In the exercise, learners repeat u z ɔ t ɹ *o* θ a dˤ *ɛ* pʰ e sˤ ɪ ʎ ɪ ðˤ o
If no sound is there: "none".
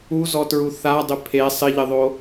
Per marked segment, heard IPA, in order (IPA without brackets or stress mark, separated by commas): u, ɪ